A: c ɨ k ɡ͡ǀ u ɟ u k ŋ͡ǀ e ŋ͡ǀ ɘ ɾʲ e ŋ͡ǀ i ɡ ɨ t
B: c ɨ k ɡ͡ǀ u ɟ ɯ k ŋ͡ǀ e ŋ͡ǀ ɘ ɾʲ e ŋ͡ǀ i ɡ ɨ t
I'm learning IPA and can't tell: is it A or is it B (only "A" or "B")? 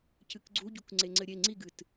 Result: A